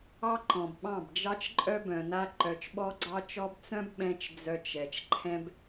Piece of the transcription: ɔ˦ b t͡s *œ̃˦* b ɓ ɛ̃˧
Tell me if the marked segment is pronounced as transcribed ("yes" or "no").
yes